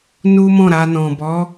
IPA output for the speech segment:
n u˦ m ɔ̃˦˨ ɾ a˧ n ɔ̃˨ b ɔ˨˦

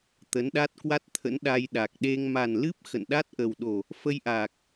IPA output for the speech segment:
t̪ ə˨˦ n ɗ a˦˥ t̚ k w a˦˥ t̚ t̪ʰ ə̰˧˥ n ɗ a˧ j ɗ a˨˩ k̚ ɗ e˧ ŋ m a˨˩ n l ɨ˦˥ p̚ x ə̰˧˨ n ɗ a˦˥ t̚ ʔ ə˨˩ w ɗ o˨˩ | f ə˧ j ʔ aː˨˩ k̚

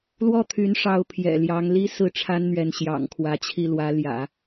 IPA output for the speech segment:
l w ɔ˥˩ t̪ʰ y˧˥ n ʂ ɑ˧˥ ʊ̯ pʰ j ɛ̰˨˩ l j ɑ˧˥ ŋ l i˥ s ɹ̩˥˩ ʈ͡ʂʰ a˥ n n̪ ɥ ɛ˧˥ n ɕ j ɑ̰˨˩ ŋ kʰ w ä˧˥ t͡ɕʰ i˥˩ l w ä˧˥ l j ä̰˨˩˦

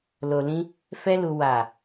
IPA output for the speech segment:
l o˧ l ĩ˦ | f ɛ˦ l u˧ w a˨

